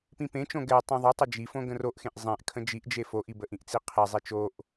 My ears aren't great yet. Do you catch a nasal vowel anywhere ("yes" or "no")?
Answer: yes